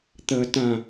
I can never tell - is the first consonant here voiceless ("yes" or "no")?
yes